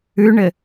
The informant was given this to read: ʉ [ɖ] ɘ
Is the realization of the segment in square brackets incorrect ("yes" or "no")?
yes